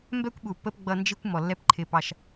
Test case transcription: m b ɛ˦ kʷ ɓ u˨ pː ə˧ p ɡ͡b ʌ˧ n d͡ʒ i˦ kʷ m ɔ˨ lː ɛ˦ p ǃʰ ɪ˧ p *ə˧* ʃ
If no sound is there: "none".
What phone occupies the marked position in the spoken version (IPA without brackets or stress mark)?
ɑ˧